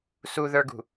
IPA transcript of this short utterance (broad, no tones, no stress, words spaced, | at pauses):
suðə˞ɡṳ